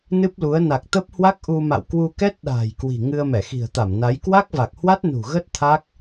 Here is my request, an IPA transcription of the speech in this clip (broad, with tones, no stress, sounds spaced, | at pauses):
n ɨ˦˥ p̚ l u˨˦ ə̯ n a˨˩ k̚ t̪ ə˦˥ p̚ h w a˦˥ k̚ ʔ u˧ m a̰˧˨ w k w u˧ k ɛ˦˥ t̚ ɗ a̤ː˨˩ j k w i̤˨˩ ŋ ɨ˧ ə̯ m ɛ˧˩ x i̤˨˩ ə̯ t̪ a˧˩ m n a˨˦ j k w a˦˥ k̚ v a˨˩ k̚ h w a˦˥ t̚ n ṳ˨˩ ɣ ə˦˥ t̚ t̪ʰ a˦˥ k̚